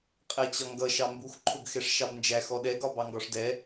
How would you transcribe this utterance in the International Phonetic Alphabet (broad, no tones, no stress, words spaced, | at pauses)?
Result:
qʼɛt͡ɕɒŋɡʌ ʃɑmbux ǃʰʊɡxɛʂʃɑbnd͡ʒæ xɔɗɛ ɡɒbɑŋɡɒʂdɛ